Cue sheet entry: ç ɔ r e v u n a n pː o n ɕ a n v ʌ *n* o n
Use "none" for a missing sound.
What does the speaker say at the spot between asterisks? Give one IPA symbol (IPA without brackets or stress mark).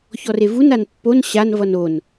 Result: n